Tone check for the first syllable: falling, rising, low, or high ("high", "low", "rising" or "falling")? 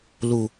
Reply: low